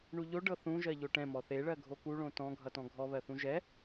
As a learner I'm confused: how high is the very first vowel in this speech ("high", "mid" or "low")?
high